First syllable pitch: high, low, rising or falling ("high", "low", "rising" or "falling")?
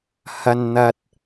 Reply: low